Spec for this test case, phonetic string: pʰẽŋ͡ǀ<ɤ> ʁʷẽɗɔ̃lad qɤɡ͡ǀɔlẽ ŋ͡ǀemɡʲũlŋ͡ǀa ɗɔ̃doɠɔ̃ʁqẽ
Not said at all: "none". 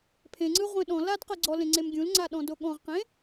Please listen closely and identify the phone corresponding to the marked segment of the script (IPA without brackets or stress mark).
ɯ